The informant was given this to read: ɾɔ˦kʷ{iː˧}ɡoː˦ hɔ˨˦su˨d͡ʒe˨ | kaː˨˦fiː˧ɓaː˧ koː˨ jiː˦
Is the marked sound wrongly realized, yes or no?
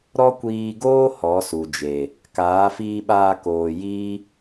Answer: no